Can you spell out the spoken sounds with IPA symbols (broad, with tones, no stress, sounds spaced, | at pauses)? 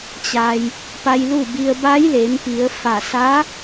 t͡ɕ a˩ j | p a˧ j l u˥˨ b i˧ ə̯ b a˧˥ j l eː˩˧ m p i˩˧ ə̯ f a˧˩ s a˧˥